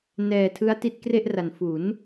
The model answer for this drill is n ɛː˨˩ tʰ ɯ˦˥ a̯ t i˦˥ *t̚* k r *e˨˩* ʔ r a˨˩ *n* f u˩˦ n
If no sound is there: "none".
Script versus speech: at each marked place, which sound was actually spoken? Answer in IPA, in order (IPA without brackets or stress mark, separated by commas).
t̚, e˥˩, n